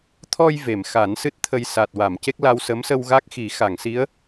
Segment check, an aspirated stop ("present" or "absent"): present